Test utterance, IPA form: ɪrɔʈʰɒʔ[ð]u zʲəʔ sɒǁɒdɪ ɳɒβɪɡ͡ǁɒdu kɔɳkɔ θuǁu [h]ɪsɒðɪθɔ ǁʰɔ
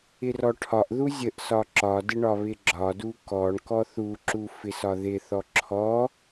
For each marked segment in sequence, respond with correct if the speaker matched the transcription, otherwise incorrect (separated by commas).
correct, incorrect